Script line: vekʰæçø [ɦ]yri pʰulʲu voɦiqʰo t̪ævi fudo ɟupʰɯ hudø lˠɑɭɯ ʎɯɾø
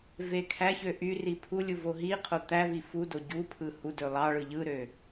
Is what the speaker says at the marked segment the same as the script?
no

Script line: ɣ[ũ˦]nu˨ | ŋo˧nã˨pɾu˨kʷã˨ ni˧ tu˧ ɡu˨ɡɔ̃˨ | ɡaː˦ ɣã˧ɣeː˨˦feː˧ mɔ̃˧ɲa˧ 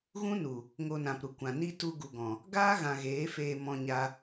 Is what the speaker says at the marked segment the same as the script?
yes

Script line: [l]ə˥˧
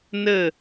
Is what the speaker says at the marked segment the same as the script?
no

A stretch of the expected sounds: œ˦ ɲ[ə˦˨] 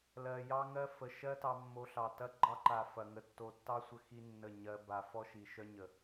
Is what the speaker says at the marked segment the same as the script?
no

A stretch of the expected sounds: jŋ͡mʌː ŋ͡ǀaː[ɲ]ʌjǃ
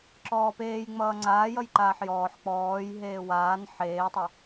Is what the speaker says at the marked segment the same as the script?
no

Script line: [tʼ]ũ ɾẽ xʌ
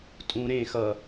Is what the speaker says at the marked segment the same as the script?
yes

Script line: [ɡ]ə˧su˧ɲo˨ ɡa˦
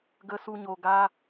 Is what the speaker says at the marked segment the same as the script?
yes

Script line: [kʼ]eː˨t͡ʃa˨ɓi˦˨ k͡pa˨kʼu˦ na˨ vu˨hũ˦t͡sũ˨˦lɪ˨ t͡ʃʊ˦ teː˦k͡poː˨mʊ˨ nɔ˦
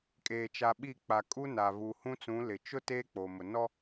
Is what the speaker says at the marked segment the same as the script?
yes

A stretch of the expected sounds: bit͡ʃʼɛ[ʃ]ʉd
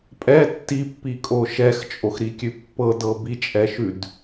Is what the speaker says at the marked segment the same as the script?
yes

